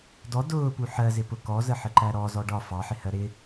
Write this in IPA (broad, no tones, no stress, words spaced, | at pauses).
dɔ dʊːpu ħɜzɪpʊ kɔzəħəǃæ ɾɔzɔ ɖɒ fɑħɪhɜ ɾɪ